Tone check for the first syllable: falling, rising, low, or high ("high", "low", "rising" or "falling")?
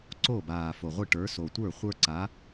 falling